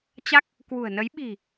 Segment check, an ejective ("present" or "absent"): absent